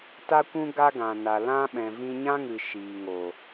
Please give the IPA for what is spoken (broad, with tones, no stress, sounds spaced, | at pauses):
t a˦ kʷ ũ˦ ɡ a˦ ɡ ã˨ n a˨ l ã˦ ɓ ɛ̃˨ v ĩ˧ ɲ ã˦ ŋ ɨ˨ ʃ iː˨ ŋ o˨